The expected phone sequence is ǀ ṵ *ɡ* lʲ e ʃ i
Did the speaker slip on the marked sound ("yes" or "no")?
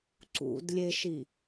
yes